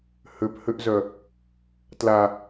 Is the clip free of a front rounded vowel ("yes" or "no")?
no